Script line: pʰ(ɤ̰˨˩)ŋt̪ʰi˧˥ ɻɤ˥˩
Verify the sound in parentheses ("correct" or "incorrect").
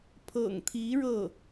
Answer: correct